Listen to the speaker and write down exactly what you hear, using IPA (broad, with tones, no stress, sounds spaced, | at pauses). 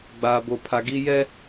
ɡ͡b aː˨ b o˨ pʰ a˨ ɡ i˦ j ɛ˦